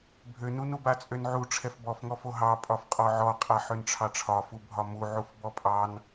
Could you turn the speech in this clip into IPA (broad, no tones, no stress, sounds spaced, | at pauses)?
bʱ ø n u n u b a t͡sʼ ø n ʕ u ʈ͡ʂʰ ɛ f b ɔ f ŋ ɔ f o ɦ ɑ pʼ ɒ f qʼ ɔ ʕ ɔ qʼ a ħ ø n ʈ͡ʂʰ ɑ ʈ͡ʂʰ ɒ f u bʱ ɒ m u ʕ u f b ɔ pʼ ɑ n